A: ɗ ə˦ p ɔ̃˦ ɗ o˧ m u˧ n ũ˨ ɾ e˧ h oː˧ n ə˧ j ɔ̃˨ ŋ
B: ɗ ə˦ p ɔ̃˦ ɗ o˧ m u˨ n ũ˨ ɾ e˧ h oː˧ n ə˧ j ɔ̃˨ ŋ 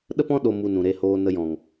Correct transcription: A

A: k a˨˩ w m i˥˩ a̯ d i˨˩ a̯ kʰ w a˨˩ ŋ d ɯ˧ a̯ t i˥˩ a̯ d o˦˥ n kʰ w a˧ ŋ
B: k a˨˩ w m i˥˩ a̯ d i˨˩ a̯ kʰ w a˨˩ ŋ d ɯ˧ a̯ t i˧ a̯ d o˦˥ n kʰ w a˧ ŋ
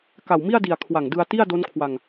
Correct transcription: A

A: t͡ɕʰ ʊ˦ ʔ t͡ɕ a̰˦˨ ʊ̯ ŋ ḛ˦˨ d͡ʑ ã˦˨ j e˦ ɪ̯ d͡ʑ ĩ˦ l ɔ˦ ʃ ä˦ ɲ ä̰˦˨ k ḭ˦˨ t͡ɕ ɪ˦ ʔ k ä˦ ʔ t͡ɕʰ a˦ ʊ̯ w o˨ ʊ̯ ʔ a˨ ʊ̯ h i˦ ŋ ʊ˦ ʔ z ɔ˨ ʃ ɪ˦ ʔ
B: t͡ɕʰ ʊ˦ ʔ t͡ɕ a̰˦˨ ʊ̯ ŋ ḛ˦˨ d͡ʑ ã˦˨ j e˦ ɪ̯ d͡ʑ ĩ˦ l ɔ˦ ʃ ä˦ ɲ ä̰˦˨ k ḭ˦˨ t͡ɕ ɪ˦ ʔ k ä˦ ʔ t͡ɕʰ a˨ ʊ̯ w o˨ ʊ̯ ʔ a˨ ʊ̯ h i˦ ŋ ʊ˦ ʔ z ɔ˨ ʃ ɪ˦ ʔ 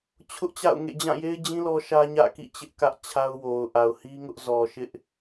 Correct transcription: A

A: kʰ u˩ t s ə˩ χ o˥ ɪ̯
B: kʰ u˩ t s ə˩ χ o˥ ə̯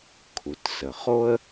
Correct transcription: B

